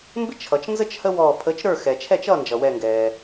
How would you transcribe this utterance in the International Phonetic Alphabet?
m b ɪ˦ t͡ʃʰ ʌ˩ t͡ʃ n z ə˦ t͡ʃ h ə˦ w ɔː˧˩ pʰ ə˨˥ t͡ʃ ɾ ə˞˥˩ x ɛ˩ t͡ʃʰ ɛ˥˩ t͡ʃ ʌː˥˩ n d͡ʒ ʌ˩ w ɛ˧˩ ŋ ɡ ɛː˩

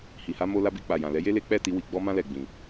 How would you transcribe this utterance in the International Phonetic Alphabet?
h i˨ h a˨˦ m o˧ l a˧ b i˧ k͡p a˨ j ã˨ l ɛ˨˦ j e˦ l e˦ k͡p ɛ˦˨ t i˧ w i˨ ɡ͡b ɔ˧ m ã˧ l ɛ˨ ɡ͡b ĩ˨

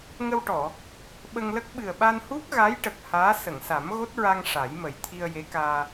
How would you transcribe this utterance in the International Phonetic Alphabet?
ŋ ə˧ w ʈ ɔ˨˩˨ | ɓ ə˧ ŋ l ə˦˥ k̚ ɓ ɨ˨˩ ə̯ ɓ a˧ n h u˦˥ k̚ ɣ a˧˥ j ʈ ə˨˩ k̚ h aː˧˥ s ə˨˩˨ ŋ s a˨˩˦ m ɣ o˦˥ t̚ ɹ a˧ ŋ ʂ a˨˩˦ j m ə˨˩ j t̪ʰ i˧ ə̯ j e˧˥ k aː˧

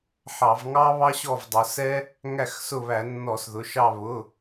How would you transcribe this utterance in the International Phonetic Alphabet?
ħ ɑ˧˩˧ v ŋ ɑ˥ β ɑ˥ ɕ ɔ˦˨ v dˤ ʊ˩˧ s ɛ˥ | ŋ æ˦˨ x s ʊ˦˨ β æ˧˩˧ nː ɔ˧˩˧ s ð ʊ˩˧˩ ʃ ɑ˦˨ β ʊ˩˧˩

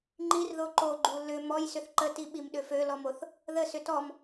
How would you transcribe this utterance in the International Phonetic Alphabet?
ŋ͡ǃ i r ð o ǃ o ɡ͡ǃ u l ʏ m ɔ j s ʏ θ ǃ ə t i ɓ i m ɗ ʏ f ø l ɔ m o θ | ð ə s ʏ t ɔ m

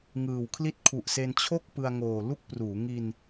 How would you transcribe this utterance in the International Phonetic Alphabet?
ŋ ɯː˨˩ w kʰ l i˥˩ t̚ kʰ u˨˩ ʔ s e˧ n t͡ɕʰ o˥˩ k̚ p ɯ˧ a̯ ŋ oː˨˩ l u˥˩ k̚ p r uː˩˦ ŋ i˧ n

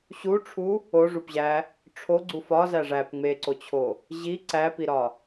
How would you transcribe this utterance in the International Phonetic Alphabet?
ɕ u ʈ͡ʂʰ u | o ʐ u p ʑ æ | ʈ͡ʂʰ o ɡ͡ǀ u f ɒ z æ ʐ æ p ŋ͡m e ǀ o t͡ɕʰ o | ʑ i ǀ æ p i ɾ ɒ

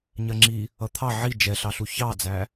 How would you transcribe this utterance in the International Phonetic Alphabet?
ɲ ɜ ŋ͡ǁ i | ʌ t̪ʰ ɑ ʕ i d͡ʒ ɛ ɬ ɑ ɬ u ç ɑ d͡z æ

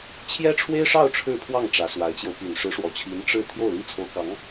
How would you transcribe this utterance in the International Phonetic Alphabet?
t͡ɕʰ j ɛ˥ ʈ͡ʂʰ w e˥ ɪ̯ ʂ ɑ˥˧ ʊ̯ ʈ͡ʂʰ ɻ̩˥˧ pʰ w ɑ˥˩ ŋ ʈ͡ʂ ä˧˥ s w a˧˥ ɪ̯ t͡ɕ j o˧ ʊ̯ p y˨˩ n ʂ ɻ̩˧˥ ʂ w ɔ˨˩ t͡ɕʰ i˧˥ n ʈ͡ʂ ɻ̩˥˧ t̪ʰ j o˥˩ ʊ̯ l i˥ t͡sʰ o˧˥ ʊ̯ k ɑ˧˥ ŋ

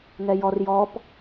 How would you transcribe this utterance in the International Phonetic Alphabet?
ŋ ɛ j ɔ r j ɔ p

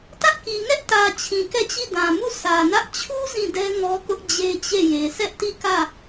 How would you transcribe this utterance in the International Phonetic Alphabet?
t ä˦ ʔ k i˨ ŋ ɛ˦ ʔ t ä˨ t͡ɕʰ ĩ˨ k ɛ˦˨ t͡ɕ i˦˨ d ã˨ m u˦˨ s ä˨ n ä˦ ʔ t͡ɕʰ u˦ z ĩ˦˨ d ɛ˦ ŋ ɔ˦ k ʊ˦ ʔ d͡ʑ e˦ t͡ɕ e˦˨ j e˨ s ɛ˦ ʔ t i˦˨ k ä˦˨

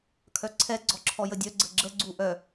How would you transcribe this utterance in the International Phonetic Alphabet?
kʰ œ ǀʰ ɛ ɡ͡ǀ ɔ ǁʰ ɔ j ə dʲ œ ɡ͡ǀ ə ɡ͡ǁ ə ɡ͡ǀ u ʔ œ

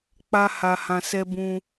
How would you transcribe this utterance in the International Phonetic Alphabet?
k͡p a˦ h a˧ h ã˧ s ɛ˦ b ũ˧

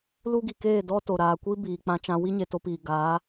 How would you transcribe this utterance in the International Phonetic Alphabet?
l u˦ ɡ i˨ k eː˦˨ d ɔ˦ t o˨ ɾ aː˨ kʷ i˦ b iː˨ k͡p ã˧ t͡ʃ ã˧ w i˦ ɲ e˨ t o˧ p iː˨ ɡ aː˨˦

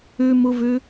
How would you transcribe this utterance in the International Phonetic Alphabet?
ʉ m u v ʉ

